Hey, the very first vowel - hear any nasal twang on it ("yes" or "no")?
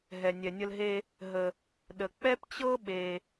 no